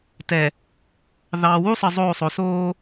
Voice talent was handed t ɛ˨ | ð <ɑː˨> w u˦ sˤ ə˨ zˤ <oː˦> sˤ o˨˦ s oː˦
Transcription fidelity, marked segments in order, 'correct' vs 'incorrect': correct, incorrect: oː˦˨

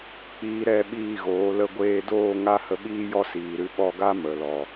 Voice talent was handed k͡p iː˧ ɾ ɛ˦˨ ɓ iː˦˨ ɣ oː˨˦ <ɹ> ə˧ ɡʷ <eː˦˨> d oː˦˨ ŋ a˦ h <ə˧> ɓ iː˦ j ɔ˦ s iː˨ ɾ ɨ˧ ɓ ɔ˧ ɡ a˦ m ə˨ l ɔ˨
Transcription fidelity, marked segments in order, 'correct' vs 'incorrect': incorrect: l, incorrect: eː˧, correct

